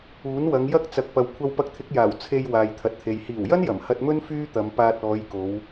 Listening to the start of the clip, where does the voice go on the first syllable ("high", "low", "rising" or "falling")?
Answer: rising